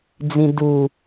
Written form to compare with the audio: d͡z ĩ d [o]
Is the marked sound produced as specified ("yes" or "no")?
no